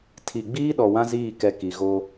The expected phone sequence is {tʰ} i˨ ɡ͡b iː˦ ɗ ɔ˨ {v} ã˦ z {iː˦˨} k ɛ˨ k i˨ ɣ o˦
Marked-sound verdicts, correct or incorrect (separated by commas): correct, incorrect, correct